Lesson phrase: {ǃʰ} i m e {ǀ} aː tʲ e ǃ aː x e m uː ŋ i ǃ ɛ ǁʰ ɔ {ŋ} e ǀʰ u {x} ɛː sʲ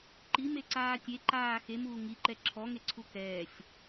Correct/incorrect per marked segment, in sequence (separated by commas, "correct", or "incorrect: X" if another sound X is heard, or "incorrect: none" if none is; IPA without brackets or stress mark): incorrect: ǃ, correct, correct, incorrect: k